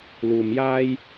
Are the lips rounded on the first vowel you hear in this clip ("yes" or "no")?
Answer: yes